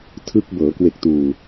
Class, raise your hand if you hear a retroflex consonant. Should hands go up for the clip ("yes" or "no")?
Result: no